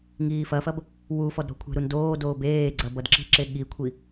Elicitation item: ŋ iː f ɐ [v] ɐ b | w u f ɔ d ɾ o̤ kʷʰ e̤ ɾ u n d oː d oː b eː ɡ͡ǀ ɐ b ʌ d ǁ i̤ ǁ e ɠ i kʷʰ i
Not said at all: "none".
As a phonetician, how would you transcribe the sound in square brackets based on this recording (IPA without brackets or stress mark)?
f